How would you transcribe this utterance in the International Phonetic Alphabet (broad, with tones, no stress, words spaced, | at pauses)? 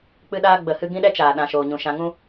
k͡pɨ˧ɗaː˧ɡ͡bə˨hɨ˧ ɡĩ˦ɗɛ˦t͡ʃaː˨ ɗã˨ʃoː˨ɲũ˨ʃã˧ ŋũ˦